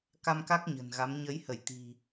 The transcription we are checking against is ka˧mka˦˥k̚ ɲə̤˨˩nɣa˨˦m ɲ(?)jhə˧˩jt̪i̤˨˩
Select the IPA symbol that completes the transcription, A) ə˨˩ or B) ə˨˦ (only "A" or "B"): B